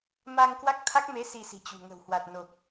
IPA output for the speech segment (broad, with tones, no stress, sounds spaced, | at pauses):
m a˧ ŋ k w a˦˥ k̚ t̪ʰ a˦˥ k̚ m e˨˦ s i˧ s i̤˨˩ t͡ɕ ṳ˨˩ ŋ ə̤˨˩ w h w a˨˩ t̚ n o˨˩ k̚